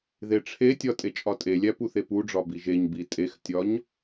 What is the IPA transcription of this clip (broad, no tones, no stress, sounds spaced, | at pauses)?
ð e ʈ͡ʂʰ e tʲ ɒ tʼ e t͡ʃʼ ɒ tʼ e lʲ æ p u θ e p u ɖ͡ʐ ɒ b i ʒ e ɲ b i tʼ e x tʲ ɒ ɲ